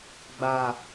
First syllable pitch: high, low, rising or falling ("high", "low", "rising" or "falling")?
low